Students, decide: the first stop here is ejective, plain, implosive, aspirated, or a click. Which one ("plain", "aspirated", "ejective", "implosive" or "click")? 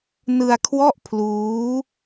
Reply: aspirated